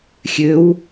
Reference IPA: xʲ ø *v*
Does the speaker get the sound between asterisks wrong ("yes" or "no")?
yes